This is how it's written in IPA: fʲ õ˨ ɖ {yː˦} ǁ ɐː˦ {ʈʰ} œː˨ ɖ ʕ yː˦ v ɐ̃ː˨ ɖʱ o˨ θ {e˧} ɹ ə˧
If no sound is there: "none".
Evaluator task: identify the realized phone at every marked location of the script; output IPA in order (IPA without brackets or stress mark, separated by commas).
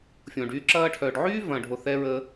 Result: yː˦, ʈʰ, ɛ˧